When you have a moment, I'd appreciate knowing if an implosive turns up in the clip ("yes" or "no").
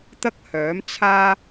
no